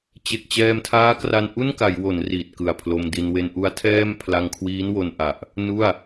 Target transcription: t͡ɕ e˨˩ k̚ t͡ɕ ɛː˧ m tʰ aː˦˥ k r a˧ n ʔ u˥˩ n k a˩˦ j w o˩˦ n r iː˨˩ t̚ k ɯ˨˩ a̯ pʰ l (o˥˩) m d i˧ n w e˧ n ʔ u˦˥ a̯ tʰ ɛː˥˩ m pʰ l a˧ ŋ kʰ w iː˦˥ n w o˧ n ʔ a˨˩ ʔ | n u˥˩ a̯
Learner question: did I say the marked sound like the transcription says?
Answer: no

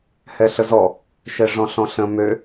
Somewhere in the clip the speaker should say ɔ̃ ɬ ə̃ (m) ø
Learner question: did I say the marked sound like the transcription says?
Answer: yes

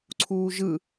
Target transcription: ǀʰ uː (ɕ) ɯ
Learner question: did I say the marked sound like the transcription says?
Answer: no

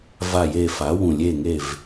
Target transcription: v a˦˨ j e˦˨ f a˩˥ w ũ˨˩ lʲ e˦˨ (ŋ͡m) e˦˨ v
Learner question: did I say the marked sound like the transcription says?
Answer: no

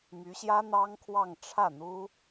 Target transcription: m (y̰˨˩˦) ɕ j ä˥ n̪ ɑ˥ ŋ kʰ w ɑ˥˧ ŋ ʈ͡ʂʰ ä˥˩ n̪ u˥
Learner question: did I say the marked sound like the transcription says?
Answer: no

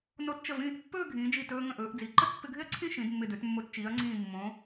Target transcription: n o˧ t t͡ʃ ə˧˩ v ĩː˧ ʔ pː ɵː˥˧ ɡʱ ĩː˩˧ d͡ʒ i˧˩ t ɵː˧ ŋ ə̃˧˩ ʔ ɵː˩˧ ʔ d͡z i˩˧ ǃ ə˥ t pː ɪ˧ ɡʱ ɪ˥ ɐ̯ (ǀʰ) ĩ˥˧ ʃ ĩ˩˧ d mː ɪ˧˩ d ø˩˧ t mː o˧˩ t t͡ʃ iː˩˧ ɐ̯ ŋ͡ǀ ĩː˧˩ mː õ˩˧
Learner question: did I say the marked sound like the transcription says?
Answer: yes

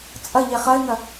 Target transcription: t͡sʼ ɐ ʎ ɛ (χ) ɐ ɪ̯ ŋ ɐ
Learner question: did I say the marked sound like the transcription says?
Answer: yes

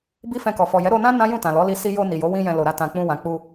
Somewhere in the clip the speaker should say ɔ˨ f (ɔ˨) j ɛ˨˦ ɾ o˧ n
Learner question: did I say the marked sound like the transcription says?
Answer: yes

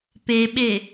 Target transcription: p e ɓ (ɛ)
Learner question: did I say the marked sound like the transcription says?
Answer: no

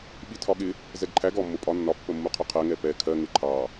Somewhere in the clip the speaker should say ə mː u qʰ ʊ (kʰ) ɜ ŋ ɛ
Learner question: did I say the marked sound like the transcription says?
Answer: no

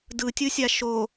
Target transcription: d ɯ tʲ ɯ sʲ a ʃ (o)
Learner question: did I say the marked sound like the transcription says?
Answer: yes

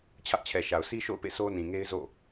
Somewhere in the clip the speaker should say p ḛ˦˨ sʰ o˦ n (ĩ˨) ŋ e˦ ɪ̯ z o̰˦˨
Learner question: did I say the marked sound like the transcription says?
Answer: yes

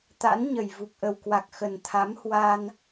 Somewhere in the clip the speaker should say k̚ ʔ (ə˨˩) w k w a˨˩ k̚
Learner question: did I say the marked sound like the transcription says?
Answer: yes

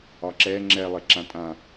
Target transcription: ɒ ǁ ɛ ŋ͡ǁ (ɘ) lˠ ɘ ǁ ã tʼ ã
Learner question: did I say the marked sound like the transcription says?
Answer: no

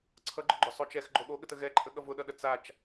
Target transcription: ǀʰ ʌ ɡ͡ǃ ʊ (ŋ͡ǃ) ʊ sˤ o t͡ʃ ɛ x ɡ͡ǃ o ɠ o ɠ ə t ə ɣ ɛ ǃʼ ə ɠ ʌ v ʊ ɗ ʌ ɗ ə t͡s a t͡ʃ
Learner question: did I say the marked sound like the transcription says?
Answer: no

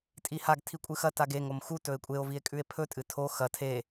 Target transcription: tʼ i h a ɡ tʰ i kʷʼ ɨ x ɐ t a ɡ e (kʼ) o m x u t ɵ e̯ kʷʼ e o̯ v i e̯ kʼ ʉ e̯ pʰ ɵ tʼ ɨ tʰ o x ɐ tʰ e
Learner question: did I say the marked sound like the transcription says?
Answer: no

